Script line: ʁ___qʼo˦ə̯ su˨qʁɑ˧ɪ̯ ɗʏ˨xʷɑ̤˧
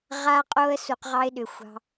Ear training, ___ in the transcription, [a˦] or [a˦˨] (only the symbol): a˦